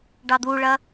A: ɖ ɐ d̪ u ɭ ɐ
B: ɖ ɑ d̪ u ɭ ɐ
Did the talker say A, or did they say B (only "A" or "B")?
B